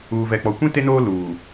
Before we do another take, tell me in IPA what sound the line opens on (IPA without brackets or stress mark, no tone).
uː